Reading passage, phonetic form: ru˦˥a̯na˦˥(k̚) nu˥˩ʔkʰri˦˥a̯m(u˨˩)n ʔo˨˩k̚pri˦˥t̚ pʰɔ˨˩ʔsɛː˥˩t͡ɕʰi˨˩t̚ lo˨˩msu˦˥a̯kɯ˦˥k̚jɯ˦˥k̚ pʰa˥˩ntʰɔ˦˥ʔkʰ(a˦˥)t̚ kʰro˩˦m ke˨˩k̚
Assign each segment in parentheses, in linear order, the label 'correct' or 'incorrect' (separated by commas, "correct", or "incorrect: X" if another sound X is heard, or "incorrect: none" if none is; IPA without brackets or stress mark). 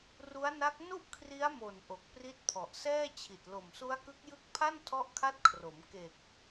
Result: correct, incorrect: o˨˩, correct